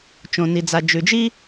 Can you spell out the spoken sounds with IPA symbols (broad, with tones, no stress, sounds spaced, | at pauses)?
t͡ʃ õ˩ n i˩ d͡z a˩ d͡ʒ ʉ˩ d͡ʒ i˥